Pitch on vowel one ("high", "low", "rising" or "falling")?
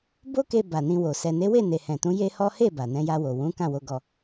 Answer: high